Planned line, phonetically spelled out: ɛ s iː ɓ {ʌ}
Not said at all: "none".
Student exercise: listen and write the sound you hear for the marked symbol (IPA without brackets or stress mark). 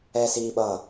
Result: ʌ